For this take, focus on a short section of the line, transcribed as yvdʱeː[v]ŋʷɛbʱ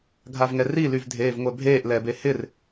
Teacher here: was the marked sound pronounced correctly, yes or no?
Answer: yes